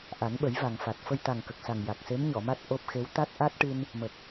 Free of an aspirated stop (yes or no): yes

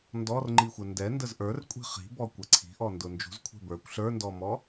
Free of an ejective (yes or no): no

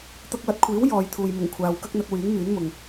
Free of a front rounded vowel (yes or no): no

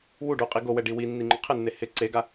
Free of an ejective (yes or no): no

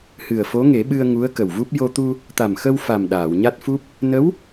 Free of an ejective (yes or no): yes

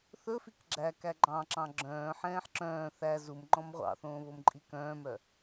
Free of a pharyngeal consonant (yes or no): no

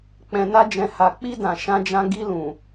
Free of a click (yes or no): yes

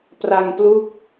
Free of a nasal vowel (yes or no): yes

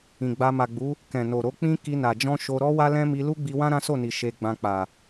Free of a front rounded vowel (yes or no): yes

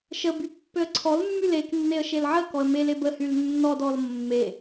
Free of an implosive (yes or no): yes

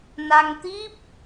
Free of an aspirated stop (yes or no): yes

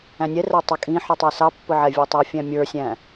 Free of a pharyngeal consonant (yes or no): no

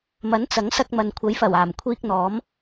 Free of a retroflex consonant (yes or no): yes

